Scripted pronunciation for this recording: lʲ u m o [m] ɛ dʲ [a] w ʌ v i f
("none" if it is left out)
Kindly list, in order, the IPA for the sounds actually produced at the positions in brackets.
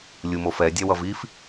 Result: f, a

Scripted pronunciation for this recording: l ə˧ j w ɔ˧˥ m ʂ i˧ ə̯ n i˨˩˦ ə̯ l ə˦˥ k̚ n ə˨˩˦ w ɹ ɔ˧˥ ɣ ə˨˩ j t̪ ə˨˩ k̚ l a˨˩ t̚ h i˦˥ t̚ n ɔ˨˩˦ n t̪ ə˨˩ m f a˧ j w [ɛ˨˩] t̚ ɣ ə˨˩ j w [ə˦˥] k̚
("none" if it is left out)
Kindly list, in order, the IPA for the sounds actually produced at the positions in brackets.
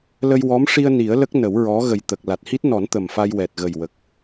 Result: ɛ˨˩, ə˨˩

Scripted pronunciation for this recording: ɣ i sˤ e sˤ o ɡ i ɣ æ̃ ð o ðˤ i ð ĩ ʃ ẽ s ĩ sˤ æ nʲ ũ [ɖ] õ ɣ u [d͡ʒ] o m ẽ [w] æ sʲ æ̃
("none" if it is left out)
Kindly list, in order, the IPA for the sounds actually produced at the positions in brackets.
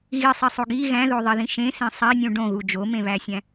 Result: ɖ, d͡ʒ, β

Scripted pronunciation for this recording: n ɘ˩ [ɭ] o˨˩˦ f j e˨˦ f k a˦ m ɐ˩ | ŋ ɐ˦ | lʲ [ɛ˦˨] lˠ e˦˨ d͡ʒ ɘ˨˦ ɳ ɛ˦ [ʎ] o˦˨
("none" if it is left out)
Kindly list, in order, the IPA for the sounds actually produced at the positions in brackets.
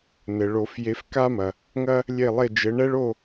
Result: ɭ, e˦˨, ɭ

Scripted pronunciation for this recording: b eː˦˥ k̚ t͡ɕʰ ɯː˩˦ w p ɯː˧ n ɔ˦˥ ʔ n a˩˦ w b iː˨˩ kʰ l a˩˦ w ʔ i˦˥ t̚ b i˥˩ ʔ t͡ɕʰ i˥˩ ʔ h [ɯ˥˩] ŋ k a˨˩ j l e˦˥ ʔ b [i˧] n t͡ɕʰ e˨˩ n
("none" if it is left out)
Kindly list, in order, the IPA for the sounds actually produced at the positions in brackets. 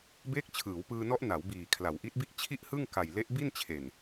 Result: ɯ˥˩, i˥˩

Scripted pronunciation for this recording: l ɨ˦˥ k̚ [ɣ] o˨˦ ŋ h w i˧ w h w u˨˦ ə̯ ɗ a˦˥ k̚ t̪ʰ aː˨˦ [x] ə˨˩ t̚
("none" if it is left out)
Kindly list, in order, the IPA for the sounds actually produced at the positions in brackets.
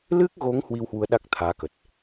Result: ɣ, k

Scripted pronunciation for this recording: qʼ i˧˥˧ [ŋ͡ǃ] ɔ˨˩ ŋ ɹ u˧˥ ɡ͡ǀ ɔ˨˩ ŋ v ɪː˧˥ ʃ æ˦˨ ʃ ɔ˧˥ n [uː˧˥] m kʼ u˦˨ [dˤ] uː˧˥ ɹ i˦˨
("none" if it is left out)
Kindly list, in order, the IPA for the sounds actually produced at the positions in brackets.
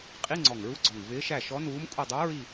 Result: ŋ͡ǀ, uː˧˥, dˤ

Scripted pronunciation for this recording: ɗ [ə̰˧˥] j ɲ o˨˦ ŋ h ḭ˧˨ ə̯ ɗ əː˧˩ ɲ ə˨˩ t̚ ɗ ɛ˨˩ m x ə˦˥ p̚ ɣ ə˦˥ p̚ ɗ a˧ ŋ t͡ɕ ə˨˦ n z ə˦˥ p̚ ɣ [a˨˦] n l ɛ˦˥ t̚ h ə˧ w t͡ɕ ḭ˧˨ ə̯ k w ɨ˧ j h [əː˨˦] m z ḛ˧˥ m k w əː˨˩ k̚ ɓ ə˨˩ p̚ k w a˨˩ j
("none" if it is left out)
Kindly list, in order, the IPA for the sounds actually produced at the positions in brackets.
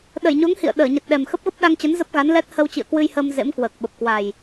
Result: ə˧˩, a˨˦, əː˧

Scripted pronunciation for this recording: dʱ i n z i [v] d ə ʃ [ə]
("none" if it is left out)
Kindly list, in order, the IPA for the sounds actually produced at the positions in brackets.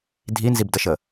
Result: b, ə

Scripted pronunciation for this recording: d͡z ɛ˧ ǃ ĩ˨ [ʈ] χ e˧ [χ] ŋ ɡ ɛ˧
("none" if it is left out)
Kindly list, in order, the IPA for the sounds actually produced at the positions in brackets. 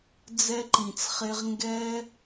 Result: t͡s, ʁ

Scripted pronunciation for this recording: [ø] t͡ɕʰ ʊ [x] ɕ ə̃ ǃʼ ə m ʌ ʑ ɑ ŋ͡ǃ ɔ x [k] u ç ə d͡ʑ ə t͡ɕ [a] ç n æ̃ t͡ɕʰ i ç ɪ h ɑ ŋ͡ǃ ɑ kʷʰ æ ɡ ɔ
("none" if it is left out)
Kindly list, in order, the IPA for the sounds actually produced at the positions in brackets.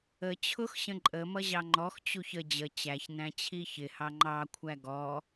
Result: ə, x, t͡ɕ, æ

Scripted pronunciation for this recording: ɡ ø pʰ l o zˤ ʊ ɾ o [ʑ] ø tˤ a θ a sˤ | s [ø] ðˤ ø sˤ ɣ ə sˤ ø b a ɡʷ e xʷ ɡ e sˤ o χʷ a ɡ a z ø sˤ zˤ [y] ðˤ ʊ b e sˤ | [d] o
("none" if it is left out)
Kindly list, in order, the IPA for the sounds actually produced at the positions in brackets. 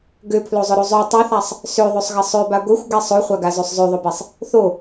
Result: zˤ, ø, ø, θ

